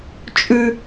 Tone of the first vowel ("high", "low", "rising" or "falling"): high